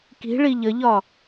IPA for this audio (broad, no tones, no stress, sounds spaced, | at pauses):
k i̤ ɭ i ʎ ə ʎ ɒ